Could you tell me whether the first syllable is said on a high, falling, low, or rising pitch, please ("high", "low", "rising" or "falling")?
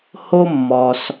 high